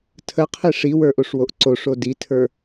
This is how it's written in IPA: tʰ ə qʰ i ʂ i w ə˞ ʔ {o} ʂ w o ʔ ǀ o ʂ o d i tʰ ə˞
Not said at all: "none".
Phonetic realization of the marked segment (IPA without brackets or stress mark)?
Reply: o